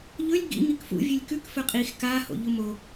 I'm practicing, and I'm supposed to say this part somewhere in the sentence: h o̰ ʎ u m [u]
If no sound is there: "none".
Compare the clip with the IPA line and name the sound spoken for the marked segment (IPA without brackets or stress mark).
o